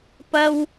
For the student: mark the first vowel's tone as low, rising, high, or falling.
low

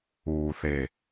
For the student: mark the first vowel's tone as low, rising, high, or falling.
low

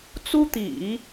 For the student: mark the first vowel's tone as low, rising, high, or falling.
high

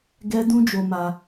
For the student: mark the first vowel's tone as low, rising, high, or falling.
high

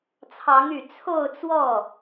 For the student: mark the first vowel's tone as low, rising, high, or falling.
rising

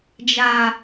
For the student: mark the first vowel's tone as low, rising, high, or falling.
low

